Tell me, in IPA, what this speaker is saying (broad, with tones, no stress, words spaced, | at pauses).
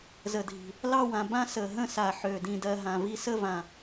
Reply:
zə˨˩dʱi̤˨˩ | lɑ˥˧wã˨˩ bã˥˧ sə˨˩ɦə̃˥˧ sa˨˩ ħø˨˩ dĩ˨˩dɜ˨˩ ɦã˨˩vi˥˧ sə˥˧vã˨˩